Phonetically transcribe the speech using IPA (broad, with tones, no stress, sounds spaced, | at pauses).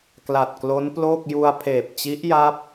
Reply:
k l a˨˩ t̚ k l o˦˥ n p l oː˥˩ k̚ j u˧ a̯ pʰ eː˨˩ p̚ t͡ɕ i˦˥ ʔ j a˦˥ p̚